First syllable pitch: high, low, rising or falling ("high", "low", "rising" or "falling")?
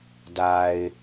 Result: low